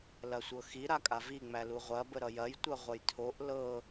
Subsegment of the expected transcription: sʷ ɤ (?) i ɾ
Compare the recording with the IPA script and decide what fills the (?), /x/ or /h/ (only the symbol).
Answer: x